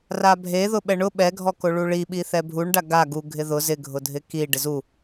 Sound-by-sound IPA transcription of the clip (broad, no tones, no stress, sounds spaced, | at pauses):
r a bʱ e ð ʊ ɓ ɛ ɳ ʊ ɓ ɛ ɡʱ ɔ k o ɭ u ɭ i ɓ i θ ɛ bʱ u ɳ ɖ a ɡ a ɡ u ɡʱ ɪ ð ʊ z ɪ ɡʱ ʊ dʱ ɪ k i ɖ ɪ z u